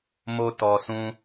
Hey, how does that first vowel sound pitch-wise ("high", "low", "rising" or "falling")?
high